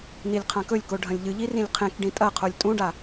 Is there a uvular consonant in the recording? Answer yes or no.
yes